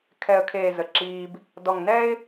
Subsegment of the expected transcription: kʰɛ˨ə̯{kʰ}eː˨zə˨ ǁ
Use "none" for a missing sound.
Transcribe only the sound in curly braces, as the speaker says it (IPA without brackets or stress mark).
kʰ